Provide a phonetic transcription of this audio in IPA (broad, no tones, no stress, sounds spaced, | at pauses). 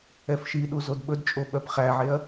ɛ f ʃ i ɗ u z o d ɓ ɵ d t͡ʃʼ o ɓ œ p χ æ ʕ e ɐ̯